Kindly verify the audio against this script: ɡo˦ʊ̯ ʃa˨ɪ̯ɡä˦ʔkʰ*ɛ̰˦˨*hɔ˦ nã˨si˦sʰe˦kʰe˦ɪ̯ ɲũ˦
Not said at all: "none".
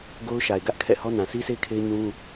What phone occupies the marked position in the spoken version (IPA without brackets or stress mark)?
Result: ɛ̰˦˨